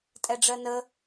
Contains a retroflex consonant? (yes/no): yes